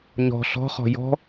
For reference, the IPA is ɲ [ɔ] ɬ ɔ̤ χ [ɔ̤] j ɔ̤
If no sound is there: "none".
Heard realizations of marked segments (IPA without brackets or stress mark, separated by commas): ɔ̤, ɔ̤